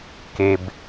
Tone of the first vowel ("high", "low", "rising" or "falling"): low